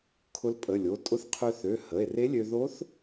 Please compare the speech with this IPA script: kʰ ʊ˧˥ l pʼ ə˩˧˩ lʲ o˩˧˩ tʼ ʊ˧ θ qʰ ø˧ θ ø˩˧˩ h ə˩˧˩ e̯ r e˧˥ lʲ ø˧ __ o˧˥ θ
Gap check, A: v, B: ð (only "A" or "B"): B